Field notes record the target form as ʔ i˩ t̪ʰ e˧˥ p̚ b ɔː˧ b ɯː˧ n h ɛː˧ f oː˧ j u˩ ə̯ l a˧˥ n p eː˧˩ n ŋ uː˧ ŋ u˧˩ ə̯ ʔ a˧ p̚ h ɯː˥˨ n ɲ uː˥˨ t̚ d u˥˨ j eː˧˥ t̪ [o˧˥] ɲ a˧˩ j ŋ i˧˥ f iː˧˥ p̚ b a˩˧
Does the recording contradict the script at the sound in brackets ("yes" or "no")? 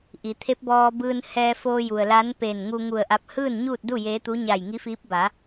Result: yes